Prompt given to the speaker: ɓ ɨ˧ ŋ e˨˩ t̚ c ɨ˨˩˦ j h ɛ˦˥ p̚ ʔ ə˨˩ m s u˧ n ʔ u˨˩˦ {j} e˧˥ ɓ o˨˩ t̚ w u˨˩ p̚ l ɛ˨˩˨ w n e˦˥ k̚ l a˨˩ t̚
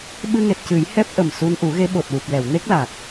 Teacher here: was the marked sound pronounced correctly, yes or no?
no